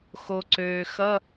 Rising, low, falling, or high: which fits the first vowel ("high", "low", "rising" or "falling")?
low